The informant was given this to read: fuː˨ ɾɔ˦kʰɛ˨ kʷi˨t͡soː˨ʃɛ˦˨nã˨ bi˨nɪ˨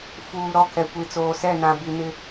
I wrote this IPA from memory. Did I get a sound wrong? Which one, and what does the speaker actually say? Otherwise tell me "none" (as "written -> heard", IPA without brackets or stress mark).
ʃ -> s